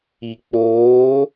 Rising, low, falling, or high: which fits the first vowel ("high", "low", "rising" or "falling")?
low